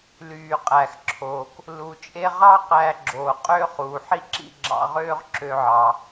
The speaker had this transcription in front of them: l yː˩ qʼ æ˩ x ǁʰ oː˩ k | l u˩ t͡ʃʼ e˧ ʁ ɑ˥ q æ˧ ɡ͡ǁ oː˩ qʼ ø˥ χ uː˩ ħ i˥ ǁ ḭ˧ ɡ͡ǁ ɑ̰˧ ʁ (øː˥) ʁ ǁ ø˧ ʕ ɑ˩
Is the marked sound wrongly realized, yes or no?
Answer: no